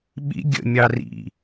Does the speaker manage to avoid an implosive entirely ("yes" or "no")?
no